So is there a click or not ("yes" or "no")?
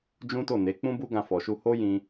no